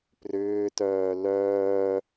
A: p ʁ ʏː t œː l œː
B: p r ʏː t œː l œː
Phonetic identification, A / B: B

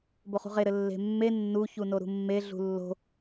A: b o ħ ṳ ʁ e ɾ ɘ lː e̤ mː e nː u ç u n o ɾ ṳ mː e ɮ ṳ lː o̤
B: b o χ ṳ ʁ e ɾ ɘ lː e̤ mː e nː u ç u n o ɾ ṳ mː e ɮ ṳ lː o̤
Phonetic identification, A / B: B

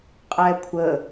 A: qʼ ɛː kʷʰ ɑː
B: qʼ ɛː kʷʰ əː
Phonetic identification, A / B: B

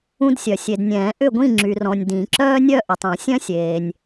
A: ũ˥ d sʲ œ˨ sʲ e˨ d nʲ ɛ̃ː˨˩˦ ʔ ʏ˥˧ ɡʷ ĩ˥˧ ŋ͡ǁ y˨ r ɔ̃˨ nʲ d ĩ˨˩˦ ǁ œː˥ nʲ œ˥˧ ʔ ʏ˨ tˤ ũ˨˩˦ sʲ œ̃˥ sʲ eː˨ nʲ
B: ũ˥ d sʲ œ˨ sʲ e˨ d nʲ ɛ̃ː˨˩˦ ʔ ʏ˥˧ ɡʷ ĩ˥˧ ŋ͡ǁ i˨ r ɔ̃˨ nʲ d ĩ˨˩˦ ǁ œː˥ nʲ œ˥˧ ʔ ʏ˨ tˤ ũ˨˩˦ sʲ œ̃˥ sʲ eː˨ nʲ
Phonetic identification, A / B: A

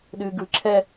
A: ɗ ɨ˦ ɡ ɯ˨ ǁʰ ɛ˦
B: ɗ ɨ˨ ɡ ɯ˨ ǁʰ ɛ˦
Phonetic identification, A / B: B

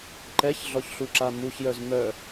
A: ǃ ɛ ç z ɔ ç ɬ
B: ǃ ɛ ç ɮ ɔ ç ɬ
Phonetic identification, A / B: B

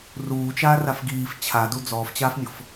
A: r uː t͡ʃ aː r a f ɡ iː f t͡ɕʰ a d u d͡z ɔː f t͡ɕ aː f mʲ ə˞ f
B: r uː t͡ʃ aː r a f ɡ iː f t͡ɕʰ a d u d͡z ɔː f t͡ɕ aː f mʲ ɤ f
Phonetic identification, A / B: B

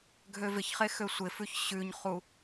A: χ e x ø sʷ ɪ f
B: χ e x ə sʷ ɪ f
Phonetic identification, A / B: A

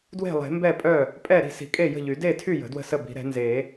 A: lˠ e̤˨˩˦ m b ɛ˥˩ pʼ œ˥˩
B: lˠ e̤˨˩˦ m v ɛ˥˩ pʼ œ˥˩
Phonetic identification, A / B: A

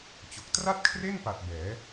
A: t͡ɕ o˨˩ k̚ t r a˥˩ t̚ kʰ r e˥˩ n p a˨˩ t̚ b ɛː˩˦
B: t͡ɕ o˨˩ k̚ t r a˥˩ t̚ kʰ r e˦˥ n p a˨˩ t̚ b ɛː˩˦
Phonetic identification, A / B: A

